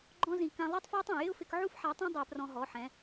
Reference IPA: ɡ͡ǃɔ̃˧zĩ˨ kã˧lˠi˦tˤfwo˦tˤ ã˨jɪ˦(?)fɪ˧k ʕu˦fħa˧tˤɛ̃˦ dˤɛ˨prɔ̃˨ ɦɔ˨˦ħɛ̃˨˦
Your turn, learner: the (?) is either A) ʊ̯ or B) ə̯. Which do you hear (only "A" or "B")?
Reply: A